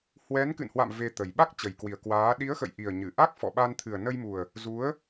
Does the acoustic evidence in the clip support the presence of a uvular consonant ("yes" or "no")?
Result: no